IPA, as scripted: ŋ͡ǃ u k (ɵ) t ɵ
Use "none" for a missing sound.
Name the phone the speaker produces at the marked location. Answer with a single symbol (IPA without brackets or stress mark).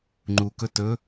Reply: ɵ